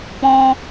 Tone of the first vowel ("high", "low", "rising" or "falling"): high